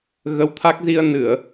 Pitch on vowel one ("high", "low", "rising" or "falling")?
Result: rising